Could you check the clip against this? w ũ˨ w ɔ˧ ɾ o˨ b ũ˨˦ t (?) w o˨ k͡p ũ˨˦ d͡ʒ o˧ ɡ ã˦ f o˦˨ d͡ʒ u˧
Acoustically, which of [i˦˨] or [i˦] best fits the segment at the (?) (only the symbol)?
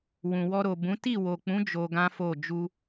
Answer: i˦˨